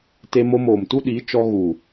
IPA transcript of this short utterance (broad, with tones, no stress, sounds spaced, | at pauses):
t e˧ m o˧ m oː˨ m t u˦ ɗ iː˨˦ t͡ʃ ɔ˧ ɣ u˨